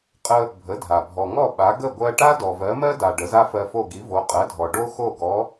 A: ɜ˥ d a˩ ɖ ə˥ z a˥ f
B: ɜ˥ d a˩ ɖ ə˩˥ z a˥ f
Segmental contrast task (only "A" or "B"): B